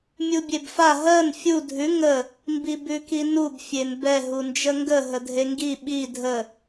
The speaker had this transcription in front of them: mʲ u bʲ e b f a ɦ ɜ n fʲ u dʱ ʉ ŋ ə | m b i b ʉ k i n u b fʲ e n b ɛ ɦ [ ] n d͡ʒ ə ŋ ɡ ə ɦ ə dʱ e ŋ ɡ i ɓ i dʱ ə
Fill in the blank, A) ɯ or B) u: B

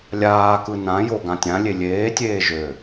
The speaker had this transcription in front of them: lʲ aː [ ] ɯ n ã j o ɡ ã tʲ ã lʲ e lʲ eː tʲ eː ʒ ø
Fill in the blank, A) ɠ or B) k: B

